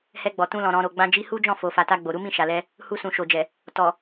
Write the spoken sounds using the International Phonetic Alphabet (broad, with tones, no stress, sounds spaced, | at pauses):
h ɛ˧ ɡ͡b ɔ˨ t ũ˧ l ɔ̃˨ ɾ ɔ̃˨ ɾ o˨ ɡ͡b ã˧ d͡ʒ i˧ h u˦ d͡ʒ ɔ̃˦˨ f o˨ f a˨ t a˧ ɡ͡b o˨ ɾ u˨˦ m ĩ˦˨ ʃ a˨ l ɛ˧ | h u˧ s ũ˨ ʃ o˨ d͡ʒ ɛ˨ | t ɔ˨